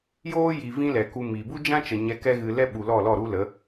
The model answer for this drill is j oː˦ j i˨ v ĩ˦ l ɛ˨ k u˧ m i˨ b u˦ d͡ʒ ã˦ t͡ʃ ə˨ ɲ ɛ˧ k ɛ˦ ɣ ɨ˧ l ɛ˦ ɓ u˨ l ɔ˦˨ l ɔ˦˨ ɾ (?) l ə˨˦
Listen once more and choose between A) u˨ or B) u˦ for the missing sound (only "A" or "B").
B